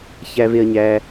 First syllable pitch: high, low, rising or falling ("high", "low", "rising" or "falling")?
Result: high